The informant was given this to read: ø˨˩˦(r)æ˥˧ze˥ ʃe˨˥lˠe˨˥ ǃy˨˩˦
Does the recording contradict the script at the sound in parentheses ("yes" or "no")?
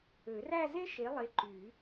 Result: no